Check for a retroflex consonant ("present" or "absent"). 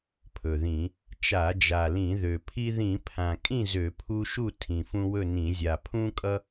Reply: absent